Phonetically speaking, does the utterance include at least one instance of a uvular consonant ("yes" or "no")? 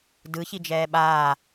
no